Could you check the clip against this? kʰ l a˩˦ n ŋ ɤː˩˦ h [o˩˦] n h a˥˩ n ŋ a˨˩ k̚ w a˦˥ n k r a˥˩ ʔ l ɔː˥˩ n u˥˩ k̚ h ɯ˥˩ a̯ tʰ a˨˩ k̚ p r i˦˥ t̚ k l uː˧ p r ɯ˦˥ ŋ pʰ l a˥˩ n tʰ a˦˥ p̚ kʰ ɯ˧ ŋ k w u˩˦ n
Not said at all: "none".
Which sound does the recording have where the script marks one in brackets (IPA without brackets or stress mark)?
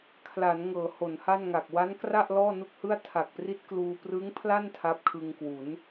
o˩˦